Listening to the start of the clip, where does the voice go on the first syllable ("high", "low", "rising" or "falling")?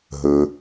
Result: low